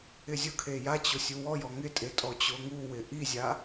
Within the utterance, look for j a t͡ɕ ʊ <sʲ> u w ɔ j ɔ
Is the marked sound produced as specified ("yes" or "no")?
yes